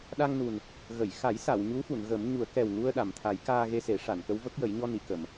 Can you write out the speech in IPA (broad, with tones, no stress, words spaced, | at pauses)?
ɗa˧ŋnu˨˩n | ɣə˨˩˨jxa˨˩˦j sa˨˩˨w ɲu˧˥fu˨˩˨nɣə˨˩˦mɲu˨˩˦ə̯ kɛ˨˩wŋu˧ə̯ ɗa˨˩˨mt̪ʰa˨˩˦j kaː˧ɣe˧ se˨˩˦ ʂa˨˩˨nkə˧˥wvə˦˥k̚jə˨˩˦j ɲɔ˧ni˨˩˨kə˨˩˨m